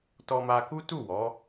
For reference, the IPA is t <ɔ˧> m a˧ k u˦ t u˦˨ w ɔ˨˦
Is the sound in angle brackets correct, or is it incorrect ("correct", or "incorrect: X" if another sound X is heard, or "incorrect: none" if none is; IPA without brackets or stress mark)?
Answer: correct